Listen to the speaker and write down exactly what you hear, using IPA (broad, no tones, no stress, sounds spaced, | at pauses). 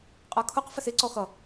qʼ ɜ kʰ ʊ q f ə s ɪ ǀ ɔ x ʌ